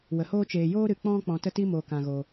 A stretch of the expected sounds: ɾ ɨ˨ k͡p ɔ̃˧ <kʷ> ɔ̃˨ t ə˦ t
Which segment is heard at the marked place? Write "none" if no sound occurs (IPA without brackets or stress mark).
k͡p